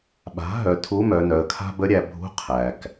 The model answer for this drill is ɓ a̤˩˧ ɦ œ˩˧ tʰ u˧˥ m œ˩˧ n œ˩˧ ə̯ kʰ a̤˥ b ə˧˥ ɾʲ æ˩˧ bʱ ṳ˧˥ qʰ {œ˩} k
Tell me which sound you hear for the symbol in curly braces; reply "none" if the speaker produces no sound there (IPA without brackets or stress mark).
æ˩